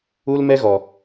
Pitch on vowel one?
high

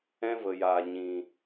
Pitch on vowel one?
high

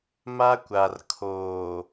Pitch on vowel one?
high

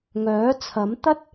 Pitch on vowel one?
rising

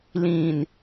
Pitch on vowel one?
low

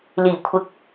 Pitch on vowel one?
low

